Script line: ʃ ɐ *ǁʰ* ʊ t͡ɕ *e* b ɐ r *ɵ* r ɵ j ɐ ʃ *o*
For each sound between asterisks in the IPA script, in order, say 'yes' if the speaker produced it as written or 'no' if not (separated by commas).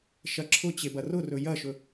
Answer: yes, yes, no, no